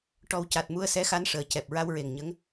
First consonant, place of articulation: retroflex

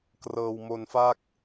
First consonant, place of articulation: velar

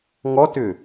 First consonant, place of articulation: velar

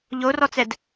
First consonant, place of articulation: palatal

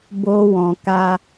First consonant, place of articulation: labial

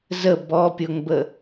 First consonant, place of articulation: alveolar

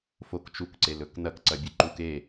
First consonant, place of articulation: labial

